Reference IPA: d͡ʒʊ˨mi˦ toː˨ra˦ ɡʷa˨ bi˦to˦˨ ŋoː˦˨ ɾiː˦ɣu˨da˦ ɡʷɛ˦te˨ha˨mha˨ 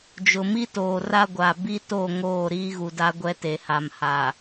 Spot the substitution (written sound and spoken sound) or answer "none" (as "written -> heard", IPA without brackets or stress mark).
none